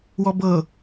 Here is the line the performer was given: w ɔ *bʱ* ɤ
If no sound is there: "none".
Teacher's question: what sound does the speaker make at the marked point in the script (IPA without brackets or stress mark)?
b